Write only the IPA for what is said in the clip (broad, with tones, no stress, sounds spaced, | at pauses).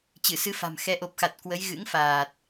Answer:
t͡ɕ ɨ˧˩ s ɨ˧ f a̤˨˩ m x ɛ˨˦ ʔ o˨˩ p̚ x a˨˩ t̚ k w ə˨˦ j ɣ ɨ̰˧˥ ŋ f aː˨˩ t̚